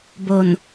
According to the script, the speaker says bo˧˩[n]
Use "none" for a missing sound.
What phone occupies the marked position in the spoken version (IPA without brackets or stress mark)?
n